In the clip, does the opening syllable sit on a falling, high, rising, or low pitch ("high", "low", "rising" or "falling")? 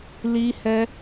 high